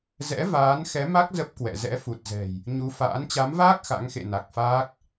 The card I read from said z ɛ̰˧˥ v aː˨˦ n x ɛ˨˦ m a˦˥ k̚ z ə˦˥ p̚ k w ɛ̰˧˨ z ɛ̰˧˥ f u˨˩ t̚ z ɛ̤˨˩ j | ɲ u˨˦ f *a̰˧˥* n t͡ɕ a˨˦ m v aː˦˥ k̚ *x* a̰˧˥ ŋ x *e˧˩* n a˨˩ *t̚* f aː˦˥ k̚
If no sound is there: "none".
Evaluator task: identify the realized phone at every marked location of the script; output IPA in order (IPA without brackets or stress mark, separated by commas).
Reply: a̰ː˧˥, x, ḛ˧˨, k̚